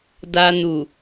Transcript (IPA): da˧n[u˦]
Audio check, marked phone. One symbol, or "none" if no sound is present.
u˨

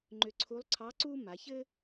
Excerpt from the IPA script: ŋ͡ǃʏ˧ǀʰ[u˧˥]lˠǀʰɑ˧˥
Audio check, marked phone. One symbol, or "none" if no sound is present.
u˧˥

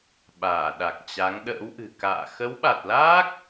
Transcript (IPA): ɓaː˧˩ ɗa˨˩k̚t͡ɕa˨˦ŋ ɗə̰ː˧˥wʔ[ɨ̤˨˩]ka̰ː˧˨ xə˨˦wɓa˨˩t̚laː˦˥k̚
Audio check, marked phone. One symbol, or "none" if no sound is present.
ɨ̤˨˩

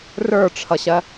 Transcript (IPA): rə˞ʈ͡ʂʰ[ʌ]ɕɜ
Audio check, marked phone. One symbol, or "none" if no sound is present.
ʌ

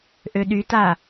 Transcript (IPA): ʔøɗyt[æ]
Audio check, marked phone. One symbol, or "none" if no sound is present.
a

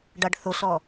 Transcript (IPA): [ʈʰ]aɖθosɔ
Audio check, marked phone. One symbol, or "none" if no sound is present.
ɖ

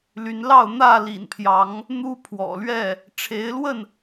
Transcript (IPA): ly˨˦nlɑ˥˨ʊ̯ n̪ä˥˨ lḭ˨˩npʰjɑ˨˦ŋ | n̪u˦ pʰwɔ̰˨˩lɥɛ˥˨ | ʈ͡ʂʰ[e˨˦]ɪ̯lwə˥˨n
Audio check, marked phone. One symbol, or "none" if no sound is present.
e˨˦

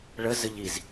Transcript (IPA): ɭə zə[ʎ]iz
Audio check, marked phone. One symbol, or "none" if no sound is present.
ʎ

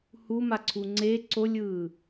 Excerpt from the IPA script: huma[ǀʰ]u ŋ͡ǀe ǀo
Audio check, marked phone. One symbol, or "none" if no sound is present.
ǀʰ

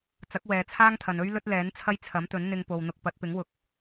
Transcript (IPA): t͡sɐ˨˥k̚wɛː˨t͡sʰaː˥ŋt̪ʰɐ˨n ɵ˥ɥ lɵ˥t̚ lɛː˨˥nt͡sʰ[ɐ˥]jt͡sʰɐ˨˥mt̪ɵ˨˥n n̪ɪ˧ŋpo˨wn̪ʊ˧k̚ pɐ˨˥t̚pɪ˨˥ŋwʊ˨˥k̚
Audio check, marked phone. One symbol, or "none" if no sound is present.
ɐ˥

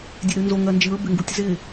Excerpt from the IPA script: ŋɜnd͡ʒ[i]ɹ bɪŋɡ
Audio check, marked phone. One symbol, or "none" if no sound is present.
ɨ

